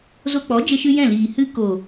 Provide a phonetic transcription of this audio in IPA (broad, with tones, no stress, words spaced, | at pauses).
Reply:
zo˧k͡pɔ˨˦d͡ʒe˧ʃɨ˧ jɛ̃˦˨liː˨ hɨ˧ko˨